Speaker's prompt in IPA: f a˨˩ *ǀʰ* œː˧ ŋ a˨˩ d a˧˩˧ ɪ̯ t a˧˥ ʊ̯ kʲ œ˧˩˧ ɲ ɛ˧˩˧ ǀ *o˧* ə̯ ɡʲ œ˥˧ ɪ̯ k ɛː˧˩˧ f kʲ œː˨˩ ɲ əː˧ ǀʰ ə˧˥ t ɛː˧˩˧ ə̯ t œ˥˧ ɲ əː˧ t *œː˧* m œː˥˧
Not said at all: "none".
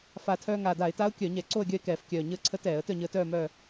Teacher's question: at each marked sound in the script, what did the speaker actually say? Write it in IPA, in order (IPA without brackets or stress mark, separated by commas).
tʰ, o˥˧, œː˥˧